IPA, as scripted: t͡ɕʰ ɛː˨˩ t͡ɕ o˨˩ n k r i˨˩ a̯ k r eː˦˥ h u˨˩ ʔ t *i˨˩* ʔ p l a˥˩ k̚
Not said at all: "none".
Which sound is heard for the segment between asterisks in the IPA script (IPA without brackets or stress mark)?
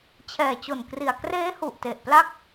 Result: e˨˩